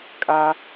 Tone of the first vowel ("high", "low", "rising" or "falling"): high